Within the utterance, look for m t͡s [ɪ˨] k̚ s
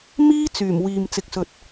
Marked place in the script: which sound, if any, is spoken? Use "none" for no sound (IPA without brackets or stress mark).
ɪ˨